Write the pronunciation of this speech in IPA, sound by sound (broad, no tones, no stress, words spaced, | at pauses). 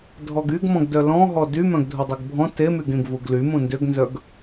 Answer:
dʱɔɡyɡmɔ̃ɡdœ lɔ̃ ɦɔdy mœ̃ɡdʱudˤyɡbʱɔ̃ temyɡẽɡ vuɡly mũndʏɡnzœɡ